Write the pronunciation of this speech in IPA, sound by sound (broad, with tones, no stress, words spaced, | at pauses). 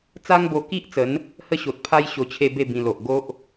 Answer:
t͡sa˦ŋbo˧ki˦ʔt͡sə˨˦n | hə˥˧ɕo˨t̚pʰa˦j ɕo˧t͡ɕʰe˥˧be˥˧ bĩ˧lo˨ʔ ɡo˦ʔ